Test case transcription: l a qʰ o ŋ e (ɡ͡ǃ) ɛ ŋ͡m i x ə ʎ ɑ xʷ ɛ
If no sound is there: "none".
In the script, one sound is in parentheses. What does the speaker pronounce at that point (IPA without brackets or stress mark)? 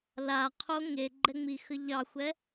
ɡ͡ǃ